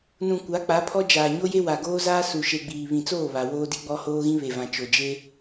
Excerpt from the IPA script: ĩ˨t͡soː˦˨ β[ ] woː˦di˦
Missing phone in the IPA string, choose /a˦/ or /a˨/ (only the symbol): a˨